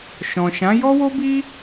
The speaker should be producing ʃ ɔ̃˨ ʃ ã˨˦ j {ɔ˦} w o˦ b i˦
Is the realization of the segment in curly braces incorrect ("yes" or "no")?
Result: no